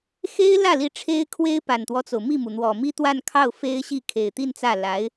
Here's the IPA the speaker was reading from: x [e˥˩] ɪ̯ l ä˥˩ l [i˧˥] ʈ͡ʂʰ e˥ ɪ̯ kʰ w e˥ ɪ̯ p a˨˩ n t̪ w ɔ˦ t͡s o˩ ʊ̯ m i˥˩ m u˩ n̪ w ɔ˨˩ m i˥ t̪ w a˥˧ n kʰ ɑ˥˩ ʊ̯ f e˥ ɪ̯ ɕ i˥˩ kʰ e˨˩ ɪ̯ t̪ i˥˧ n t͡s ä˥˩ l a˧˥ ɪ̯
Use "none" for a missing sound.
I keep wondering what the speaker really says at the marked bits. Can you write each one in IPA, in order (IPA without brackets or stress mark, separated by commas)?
e˥, i˧˥